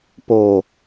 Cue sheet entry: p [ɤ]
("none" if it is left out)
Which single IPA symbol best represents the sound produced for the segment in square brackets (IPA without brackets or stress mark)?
o